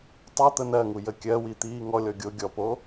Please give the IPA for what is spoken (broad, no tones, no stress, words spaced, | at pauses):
tˤo t̪ənɜŋu jəkʲɜwi t̪iːŋɔlʲɔ ɡʲo ɡʲɔpo